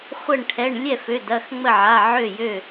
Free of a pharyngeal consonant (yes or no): no